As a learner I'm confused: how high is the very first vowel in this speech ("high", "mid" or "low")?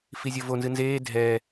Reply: high